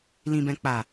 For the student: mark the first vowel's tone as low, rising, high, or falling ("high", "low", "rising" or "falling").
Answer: low